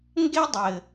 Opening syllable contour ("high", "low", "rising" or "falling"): high